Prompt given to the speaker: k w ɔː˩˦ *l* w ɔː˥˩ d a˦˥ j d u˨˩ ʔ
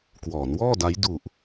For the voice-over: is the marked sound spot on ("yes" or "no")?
no